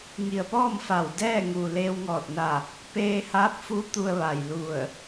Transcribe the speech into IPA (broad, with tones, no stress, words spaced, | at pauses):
ŋi˩ə̯pɔː˥˨m fa˧˩w dɛː˥˨ŋu˩ leː˧wŋɔː˧˩t̚na˧˩ | peː˧haː˧˥p̚fu˧˥ t̪u˧ə̯ʋa˩jlu˧˩ə̯